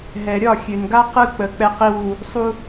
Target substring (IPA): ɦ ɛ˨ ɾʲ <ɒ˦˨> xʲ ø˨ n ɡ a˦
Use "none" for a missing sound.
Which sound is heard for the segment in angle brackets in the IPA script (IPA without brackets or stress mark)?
ɒ˦˨